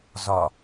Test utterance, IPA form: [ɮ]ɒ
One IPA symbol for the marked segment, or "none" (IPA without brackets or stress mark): z